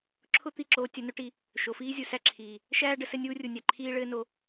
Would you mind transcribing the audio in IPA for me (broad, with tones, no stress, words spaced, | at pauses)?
ǁʰʊ˦ t̪i˦ǁoː˧ tʲɘ˧nʊ˦ʈi˧ | ʃo˨fiː˦zʲu˨ sæ˦ǁʰiː˨ | ʃæː˦ɖə˧ sɘ˦nʲuː˦ rʲu˨nʲæ˨ ǃʰiː˦ɭɘː˦ no˧